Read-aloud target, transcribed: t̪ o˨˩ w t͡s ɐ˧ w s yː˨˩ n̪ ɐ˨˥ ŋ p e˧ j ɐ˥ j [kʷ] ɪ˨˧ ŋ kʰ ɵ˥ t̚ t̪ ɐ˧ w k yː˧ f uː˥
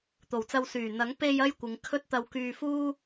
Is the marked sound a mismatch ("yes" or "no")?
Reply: no